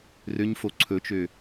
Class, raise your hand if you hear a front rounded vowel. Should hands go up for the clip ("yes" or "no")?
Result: yes